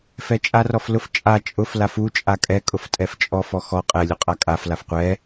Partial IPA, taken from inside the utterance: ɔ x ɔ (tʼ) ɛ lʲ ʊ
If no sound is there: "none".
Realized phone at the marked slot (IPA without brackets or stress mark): qʼ